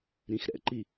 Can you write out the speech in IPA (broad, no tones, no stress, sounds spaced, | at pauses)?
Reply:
ɾ ĩ x ɾ ɛ̰ ǃ i